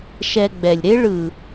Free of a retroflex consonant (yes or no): no